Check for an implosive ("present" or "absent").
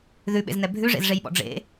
present